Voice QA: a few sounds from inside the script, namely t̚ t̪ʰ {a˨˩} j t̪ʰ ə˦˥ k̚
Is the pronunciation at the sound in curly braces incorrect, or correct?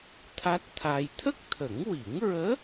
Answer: incorrect